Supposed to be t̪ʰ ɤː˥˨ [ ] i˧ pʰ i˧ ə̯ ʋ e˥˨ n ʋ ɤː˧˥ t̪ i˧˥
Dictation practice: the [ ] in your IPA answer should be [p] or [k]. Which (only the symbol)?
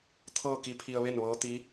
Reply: k